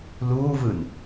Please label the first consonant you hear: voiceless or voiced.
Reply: voiced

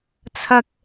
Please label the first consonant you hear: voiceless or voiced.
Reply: voiceless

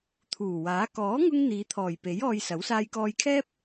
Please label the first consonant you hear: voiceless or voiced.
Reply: voiceless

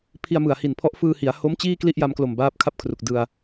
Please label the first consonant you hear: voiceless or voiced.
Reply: voiceless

